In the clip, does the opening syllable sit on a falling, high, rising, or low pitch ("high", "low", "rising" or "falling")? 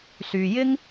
low